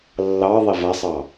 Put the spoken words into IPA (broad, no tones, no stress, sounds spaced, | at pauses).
lː ɑ ðˤ e v a sˤ ɑ